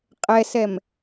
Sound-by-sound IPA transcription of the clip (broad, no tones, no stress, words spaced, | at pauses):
qʼɛsɛm